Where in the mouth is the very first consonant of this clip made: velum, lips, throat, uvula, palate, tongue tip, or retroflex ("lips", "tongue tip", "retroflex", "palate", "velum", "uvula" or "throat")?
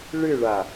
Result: retroflex